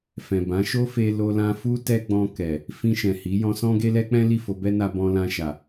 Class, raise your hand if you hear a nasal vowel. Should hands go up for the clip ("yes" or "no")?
yes